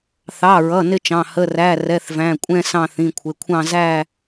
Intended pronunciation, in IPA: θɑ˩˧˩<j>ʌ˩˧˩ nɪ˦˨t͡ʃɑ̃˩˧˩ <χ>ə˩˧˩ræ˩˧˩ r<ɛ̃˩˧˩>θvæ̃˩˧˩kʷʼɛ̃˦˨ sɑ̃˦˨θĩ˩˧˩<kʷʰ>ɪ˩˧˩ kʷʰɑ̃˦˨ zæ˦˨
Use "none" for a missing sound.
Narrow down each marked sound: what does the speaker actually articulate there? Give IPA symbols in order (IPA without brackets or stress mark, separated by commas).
ɹ, h, ɛ˩˧˩, kʷʰ